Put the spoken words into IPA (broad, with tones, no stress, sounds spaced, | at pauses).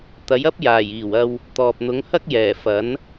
t̪ ɐ˨˥ j ɐ˥ p̚ j aː˨˩ j iː˨˩ w ɐ˧ w | t̪ ɔː˨ p̚ n̪ ʊ˨˥ ŋ h ɐ˥ k̚ j ɛː˨˩ f ɐ˨˥ n